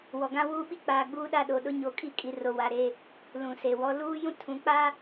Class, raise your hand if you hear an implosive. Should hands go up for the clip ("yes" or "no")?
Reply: yes